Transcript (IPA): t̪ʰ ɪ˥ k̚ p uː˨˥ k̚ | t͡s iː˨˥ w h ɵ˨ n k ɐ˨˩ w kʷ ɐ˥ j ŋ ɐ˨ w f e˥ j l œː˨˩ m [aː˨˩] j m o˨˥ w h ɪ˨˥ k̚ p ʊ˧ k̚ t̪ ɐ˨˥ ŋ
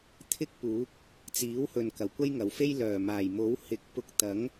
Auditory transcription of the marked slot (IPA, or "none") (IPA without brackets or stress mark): aː˨˩